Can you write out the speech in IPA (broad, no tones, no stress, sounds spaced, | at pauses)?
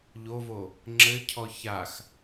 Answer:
ʎ o v o | ŋ͡ǁ ɘ cʰ ɔ ç a x